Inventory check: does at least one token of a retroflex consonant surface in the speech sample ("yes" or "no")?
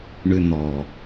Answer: yes